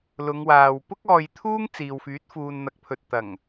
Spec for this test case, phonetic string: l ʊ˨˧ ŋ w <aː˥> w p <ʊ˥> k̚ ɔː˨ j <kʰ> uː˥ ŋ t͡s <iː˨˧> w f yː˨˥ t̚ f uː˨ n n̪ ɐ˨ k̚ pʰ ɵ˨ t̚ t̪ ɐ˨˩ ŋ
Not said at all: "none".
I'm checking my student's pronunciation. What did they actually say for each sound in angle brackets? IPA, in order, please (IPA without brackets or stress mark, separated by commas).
aː˨, ʊ˥, t̪ʰ, iː˨